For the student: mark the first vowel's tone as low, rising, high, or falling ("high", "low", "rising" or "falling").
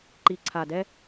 low